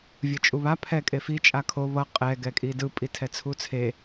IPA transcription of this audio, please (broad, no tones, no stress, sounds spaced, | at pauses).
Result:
vʲ ɯ t͡ʃʼ u β a pʰ ɛ kʼ e f i t͡ʃʼ a kʰ o β ʌ qʼ ɛ ɡ ɛ kʼ i d ɯ pʼ i tʰ ɛ t͡sʰ u t͡sʰ e